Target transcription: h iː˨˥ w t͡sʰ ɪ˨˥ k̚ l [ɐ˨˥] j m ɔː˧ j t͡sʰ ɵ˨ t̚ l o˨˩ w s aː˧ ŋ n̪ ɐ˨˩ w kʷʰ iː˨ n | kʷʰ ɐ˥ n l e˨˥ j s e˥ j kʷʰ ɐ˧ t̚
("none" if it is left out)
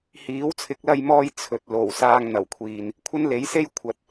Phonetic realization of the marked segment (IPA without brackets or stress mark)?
ɐ˧